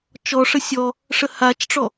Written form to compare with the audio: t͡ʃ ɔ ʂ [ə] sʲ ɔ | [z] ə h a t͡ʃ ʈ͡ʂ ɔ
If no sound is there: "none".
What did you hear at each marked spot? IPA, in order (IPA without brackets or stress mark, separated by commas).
ə, ʂ